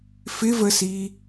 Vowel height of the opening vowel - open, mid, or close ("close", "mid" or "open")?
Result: close